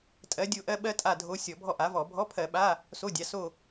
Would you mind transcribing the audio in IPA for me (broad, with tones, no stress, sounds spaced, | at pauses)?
tʼ ɜ˧˥ dʲ o˥˧ ʔ ɜ˥ ɓ ɜ˥ tʼ a˥˧ dʱ o˧˥ sʲ ɔ˧˩˧ bʱ ɔ˥˧ ʔ a˩˥ v ɔ˧˩˧ bʱ ɔ˧˥˧ pʰ ɜ˧˩˧ ɓ a˧˥˧ | s o˧˥˧ dʲ a˩˥ s o˥˧